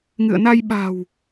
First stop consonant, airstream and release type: implosive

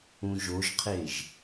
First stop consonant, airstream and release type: aspirated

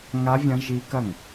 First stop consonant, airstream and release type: plain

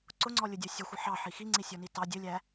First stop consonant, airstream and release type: click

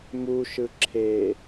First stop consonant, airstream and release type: click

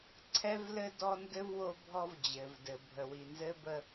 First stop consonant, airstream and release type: click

